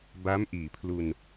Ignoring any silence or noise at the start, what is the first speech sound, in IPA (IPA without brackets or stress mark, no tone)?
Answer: b